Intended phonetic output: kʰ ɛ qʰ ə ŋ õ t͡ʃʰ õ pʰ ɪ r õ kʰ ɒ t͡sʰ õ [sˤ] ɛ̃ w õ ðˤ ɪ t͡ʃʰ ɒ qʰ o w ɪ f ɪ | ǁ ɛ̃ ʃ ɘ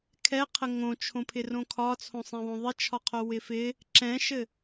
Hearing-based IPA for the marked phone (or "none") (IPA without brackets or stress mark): sˤ